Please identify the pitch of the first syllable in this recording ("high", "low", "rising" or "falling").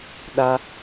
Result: high